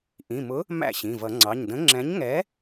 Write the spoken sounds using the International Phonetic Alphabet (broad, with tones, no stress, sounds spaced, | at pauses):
ʔ ĩ˩˧˩ m ʊ˨˥ | m æ̰˥˩ ɕ ĩ˩˧˩ v ʌ˨˩˦ ŋ͡ǀ ɑ˩˧˩ ɲ d ə̃˨˥ ŋ͡ǁ ɛ̃˨˥ ɲ ŋ ɛ˨˥